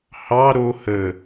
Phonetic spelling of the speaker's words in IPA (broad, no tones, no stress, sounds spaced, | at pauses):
h ɑ ɾ o h ə